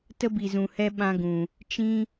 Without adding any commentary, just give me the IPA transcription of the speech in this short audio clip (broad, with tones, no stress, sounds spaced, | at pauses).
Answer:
t ə˦ b i˨ z ũ˨ h ɛ˧ ɓ ã˧ ɡ ũ˨ | t͡ʃ ĩ˦